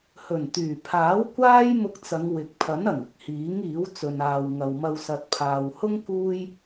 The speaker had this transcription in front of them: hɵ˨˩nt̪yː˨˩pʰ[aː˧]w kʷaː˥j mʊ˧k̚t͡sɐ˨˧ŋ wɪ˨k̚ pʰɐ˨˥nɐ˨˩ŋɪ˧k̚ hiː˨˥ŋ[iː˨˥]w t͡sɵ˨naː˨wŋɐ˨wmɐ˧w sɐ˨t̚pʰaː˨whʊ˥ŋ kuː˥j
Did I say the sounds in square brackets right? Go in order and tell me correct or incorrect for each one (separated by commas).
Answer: incorrect, correct